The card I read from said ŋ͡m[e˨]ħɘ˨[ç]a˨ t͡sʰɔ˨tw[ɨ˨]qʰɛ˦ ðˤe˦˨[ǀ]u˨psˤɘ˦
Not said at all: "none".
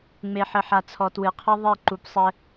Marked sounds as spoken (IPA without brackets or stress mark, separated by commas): e˨, ħ, ɨ˨, ǃ